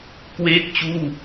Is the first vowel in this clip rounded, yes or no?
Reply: no